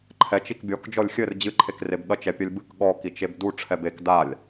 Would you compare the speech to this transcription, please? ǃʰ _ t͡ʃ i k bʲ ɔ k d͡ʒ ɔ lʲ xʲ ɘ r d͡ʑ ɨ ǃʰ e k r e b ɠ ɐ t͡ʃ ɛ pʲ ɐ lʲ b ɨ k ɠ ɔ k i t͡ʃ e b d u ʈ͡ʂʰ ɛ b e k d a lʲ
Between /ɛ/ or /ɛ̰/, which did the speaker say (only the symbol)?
ɛ